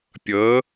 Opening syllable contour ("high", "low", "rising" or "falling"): rising